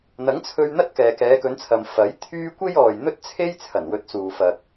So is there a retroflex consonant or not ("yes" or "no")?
no